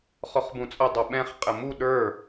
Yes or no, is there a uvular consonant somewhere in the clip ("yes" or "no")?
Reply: yes